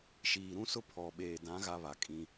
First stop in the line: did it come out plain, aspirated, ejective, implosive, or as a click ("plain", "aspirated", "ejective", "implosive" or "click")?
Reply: aspirated